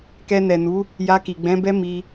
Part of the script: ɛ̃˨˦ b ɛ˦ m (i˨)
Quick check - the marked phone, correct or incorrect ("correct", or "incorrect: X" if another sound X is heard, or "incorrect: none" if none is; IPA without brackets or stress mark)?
incorrect: i˧